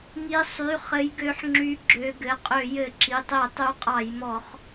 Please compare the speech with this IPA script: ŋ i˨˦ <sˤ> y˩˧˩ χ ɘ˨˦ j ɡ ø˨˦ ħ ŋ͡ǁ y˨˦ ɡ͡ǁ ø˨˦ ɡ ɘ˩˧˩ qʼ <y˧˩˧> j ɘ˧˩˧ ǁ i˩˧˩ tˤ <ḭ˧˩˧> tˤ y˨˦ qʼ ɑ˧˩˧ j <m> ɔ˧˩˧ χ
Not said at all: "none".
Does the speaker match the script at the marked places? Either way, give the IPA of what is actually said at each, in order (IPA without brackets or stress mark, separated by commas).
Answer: sˤ, ø˧˩˧, i˧˩˧, m